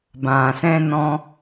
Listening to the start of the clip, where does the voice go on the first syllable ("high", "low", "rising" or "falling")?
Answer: low